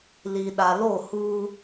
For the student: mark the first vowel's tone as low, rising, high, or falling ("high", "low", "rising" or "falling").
low